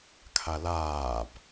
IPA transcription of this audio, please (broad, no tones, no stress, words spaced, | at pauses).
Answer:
kʰalaːb